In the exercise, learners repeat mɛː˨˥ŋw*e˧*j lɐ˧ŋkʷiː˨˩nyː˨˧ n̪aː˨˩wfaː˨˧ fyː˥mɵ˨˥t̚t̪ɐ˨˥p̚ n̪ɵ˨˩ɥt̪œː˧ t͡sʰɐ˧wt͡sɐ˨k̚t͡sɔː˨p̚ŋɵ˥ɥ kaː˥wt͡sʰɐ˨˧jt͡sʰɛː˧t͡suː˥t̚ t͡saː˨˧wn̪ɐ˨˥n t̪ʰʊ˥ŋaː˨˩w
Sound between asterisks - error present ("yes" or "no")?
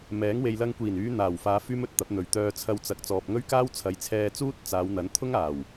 yes